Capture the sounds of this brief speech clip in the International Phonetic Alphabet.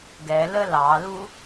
ɡ ɛ l ə l ɑ l u

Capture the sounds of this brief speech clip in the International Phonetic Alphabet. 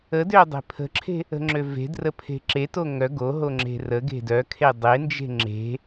ə d ø dˤ e̤ pʰ ə̤ ǁʰ e̤ | ə̤ ŋ͡ǁ ø v e̤ d r ə pʰ e̤ ǁ e t o ŋ œ ɡ o ɦ o ŋ͡ǁ e̤ r ə ɡ e̤ d œ kʰ e dˤ e n d͡ʒ e̤ ŋ͡ǁ e̤

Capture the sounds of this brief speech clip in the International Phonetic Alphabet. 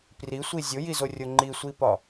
p r i sʷ i zʲ o j i z o rʲ o ŋ͡ǃ i sʷ i p ɒ

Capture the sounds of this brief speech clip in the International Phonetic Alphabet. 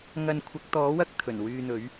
ŋ ɐ˧ n kʷʰ ɐ˨˥ k̚ t̪ ɔː˨˥ w ɐ˥ k̚ t̪ʰ ɵ˨˩ n w yː˧ n̪ ɵ˨˥ ɥ

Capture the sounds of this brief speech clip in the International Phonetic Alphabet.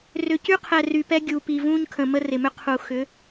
r ʏ˨ c y˦ qʰ ɛ˨ r y˨ p ɛ˦ ɡʲ u˨ p i˨ v ũː˦ ɲ kʰ ə̃˨ m ə˦ r ɪ˨ m ʏ˦ qʰ u˨ x ʏ˨˦

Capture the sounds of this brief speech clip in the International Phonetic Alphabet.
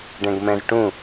ɖ ɛ̃ ɡ m ɛ̃ z ʈ ũ

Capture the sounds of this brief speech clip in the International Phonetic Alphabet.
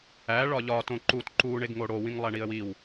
æ ɭ ɒ ʎ ɒ t õ ǃ u t ǃ u ɳ e ɡ ŋ o ɽ o w ĩ ŋ lˠ æ ɳ i ə̯ w i w

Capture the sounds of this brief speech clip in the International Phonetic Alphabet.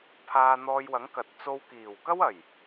pʰ aː˧ n̪ ɔː˧ j w ɐ˨˥ ŋ k ɐ˨ t̚ t͡s o˧ w k iː˨˩ w k ɐ˥ w ɐ˨˩ j

